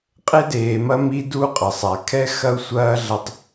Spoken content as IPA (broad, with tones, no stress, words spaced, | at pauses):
qʼe˦deː˨mɐ˦mi˦ du˦qʼɐ˨sˤa˨ kʰɛ˦xɐ˦u̯sʷɐː˦ ɮɐ˦tˤ